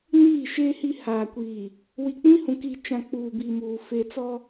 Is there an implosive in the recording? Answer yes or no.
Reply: no